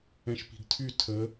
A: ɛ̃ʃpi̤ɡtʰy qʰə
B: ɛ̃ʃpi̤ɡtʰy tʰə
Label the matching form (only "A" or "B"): B